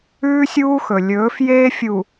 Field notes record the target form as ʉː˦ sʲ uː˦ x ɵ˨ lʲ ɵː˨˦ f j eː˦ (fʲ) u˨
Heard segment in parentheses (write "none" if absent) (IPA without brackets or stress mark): fʲ